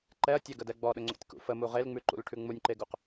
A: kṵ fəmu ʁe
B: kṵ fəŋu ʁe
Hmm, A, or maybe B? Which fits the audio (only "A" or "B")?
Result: A